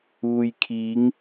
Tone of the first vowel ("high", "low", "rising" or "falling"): low